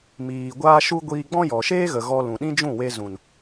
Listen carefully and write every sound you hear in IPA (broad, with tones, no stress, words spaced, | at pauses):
miː˨ ɡʷaː˦ʃu˦ɡʷiː˧ ɡ͡bɔ̃˦jɔ˨ʃeː˦ɣə˨ ɣɔ˧ lũ˨ɗĩ˦d͡ʒũ˦˨we˧ zũ˨n